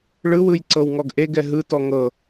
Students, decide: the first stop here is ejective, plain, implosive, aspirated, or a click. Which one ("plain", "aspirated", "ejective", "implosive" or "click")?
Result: click